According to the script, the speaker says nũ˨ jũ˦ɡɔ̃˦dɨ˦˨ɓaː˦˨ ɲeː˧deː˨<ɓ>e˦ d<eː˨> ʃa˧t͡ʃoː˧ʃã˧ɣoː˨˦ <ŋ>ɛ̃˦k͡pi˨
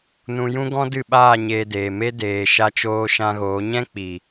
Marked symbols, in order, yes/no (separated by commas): no, yes, no